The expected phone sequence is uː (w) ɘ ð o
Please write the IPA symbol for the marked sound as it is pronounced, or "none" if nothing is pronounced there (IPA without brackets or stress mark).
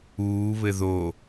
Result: β